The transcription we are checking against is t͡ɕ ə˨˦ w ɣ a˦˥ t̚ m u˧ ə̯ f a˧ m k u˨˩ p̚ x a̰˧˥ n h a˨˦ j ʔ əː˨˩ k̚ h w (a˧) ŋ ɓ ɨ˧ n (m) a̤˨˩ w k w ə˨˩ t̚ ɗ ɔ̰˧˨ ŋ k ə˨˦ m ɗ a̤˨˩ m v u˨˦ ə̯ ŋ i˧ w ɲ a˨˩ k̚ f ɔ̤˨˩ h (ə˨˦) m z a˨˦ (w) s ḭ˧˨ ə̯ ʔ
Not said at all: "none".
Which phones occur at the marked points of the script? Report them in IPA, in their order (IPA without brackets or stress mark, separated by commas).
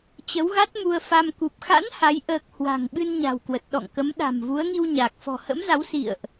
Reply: a̤˨˩, ɲ, ə̰˧˥, w